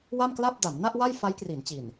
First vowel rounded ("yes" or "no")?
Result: no